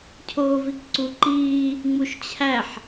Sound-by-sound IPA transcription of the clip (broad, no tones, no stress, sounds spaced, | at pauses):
cʰ oː v i k ǀ u ǃ iː | ŋ͡m u ʃ t͡ɕʰ æ ħ